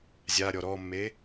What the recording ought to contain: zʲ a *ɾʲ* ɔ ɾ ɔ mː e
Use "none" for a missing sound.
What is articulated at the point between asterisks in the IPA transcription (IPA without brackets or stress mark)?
ɾʲ